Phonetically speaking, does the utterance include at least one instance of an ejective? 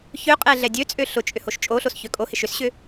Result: yes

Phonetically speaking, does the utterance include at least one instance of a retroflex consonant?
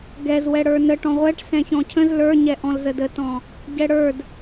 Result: yes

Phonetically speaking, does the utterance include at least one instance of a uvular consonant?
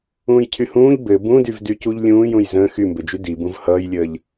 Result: no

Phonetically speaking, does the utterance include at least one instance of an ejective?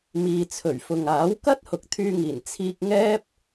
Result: no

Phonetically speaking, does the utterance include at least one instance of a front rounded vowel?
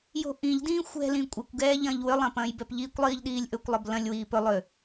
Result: yes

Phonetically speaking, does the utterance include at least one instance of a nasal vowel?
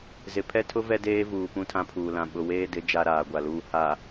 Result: yes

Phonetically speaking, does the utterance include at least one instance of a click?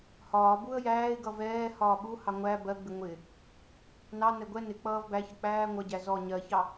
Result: no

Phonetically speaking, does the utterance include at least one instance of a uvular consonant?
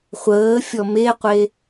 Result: yes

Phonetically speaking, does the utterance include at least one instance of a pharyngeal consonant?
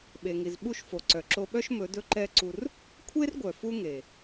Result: no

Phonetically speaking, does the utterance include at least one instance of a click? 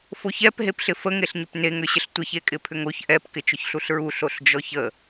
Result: no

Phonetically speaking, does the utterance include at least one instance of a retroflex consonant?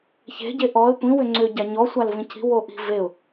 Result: no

